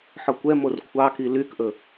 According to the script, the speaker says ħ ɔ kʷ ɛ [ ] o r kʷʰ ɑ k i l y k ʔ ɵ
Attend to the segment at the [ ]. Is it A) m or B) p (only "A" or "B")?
A